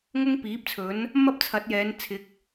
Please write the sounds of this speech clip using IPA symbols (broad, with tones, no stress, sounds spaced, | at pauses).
ŋ ʊ˥ ŋ p iː˨˥ p̚ t͡sʰ ɵ˨˥ n | m ɐ˥ p̚ t͡sʰ ɐ˨˥ t̚ j ɛː˨˧ n t͡sʰ ɪ˨˥ k̚